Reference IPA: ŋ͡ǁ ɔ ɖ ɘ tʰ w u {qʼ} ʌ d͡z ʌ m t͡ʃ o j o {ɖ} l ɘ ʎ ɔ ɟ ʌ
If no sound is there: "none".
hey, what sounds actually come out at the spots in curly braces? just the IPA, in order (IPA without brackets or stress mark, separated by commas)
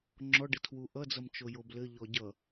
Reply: ʔ, b